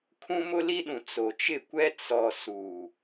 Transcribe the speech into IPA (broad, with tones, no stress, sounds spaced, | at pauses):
kʰ ũ˦ m ʊ˦ l i˦ ɗ ũ˨ t͡s o˨ t͡ʃ ɪ˦˨ kʷ ɛ˦ t͡s ɔ˨ s u˨